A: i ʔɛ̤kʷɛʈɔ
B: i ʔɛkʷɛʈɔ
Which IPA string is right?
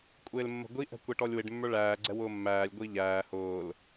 A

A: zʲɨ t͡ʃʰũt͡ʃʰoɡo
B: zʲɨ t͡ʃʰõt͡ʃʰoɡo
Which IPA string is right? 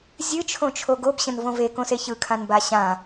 B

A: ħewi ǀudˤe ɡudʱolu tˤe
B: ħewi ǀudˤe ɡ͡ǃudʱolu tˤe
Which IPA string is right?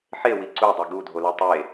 A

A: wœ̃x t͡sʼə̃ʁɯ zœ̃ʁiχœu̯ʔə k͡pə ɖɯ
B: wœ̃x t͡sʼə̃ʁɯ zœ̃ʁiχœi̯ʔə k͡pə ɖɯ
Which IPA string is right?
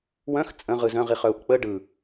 A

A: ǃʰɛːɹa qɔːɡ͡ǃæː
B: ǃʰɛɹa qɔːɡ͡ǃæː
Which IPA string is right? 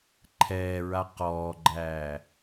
A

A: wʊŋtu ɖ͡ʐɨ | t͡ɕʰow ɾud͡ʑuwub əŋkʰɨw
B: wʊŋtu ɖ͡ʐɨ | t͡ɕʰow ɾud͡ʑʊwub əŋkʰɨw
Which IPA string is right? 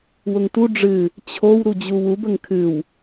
A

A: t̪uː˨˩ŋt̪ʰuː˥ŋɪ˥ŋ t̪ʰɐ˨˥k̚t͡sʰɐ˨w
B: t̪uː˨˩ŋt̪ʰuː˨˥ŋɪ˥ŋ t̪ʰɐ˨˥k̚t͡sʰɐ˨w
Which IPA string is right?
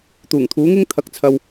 B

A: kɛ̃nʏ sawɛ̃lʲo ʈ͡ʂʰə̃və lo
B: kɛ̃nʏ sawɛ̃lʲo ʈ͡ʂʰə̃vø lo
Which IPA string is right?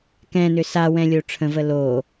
A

